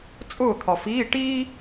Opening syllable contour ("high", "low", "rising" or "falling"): falling